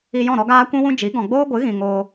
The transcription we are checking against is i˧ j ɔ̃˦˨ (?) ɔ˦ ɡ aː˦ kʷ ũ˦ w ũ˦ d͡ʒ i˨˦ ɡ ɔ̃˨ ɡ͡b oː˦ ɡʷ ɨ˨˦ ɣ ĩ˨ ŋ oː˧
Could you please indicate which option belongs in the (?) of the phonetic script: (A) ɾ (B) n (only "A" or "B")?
A